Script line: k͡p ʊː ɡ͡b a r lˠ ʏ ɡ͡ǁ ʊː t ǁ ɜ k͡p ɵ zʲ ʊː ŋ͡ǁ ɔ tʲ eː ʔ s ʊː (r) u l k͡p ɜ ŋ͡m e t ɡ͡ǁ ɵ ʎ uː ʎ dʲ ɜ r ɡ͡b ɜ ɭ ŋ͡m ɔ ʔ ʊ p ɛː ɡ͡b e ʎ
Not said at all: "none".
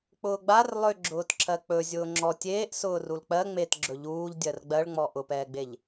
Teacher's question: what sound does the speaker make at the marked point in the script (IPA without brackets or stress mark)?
r